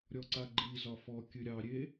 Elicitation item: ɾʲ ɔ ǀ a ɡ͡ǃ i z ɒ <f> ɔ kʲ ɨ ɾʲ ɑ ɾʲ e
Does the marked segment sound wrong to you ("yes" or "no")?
no